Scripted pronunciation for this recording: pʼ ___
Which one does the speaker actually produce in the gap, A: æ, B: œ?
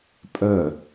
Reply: B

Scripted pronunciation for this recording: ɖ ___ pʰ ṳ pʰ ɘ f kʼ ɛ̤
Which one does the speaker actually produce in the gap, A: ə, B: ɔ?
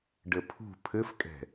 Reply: A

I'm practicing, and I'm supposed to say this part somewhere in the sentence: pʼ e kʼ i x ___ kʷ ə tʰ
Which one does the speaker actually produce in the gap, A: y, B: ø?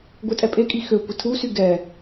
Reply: B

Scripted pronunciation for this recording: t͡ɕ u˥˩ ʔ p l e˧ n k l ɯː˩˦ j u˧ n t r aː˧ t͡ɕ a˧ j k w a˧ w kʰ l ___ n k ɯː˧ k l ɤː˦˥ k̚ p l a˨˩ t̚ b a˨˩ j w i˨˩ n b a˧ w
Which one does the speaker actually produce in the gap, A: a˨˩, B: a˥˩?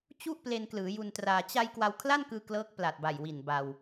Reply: B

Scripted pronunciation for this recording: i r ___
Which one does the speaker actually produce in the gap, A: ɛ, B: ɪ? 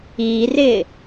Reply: B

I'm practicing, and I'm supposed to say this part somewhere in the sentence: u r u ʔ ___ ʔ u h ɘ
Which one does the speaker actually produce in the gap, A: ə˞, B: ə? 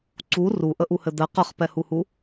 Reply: B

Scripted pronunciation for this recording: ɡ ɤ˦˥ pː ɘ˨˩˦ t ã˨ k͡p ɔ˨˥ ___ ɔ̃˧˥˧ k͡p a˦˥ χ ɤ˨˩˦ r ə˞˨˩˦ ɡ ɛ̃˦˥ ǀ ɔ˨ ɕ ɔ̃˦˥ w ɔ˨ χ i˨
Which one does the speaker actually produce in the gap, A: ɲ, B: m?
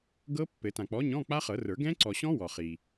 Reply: A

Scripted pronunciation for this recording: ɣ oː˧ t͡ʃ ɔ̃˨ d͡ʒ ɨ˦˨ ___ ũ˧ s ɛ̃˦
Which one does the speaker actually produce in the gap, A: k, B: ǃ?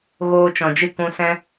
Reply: A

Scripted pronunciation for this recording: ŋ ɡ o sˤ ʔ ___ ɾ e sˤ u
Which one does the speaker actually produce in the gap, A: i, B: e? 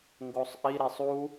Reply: A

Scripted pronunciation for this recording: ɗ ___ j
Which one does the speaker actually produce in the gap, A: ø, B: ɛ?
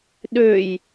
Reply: A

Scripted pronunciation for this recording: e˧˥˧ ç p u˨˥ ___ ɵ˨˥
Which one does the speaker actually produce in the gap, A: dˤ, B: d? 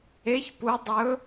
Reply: A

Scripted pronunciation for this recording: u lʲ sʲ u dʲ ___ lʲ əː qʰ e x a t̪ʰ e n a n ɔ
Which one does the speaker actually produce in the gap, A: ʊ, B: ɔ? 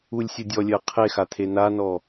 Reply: B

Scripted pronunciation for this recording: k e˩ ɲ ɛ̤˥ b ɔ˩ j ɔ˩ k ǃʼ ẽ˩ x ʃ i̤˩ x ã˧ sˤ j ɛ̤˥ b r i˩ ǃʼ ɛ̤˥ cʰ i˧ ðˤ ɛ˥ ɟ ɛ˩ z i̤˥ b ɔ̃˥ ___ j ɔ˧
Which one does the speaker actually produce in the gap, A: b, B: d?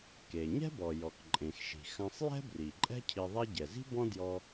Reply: B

